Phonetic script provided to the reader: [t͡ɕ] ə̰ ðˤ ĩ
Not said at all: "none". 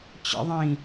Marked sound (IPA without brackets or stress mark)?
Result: t͡ɕ